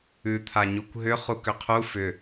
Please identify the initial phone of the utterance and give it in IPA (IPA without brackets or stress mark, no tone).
ʉ